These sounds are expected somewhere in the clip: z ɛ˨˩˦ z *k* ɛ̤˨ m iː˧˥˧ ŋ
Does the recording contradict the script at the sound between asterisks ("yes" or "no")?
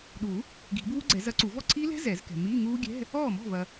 no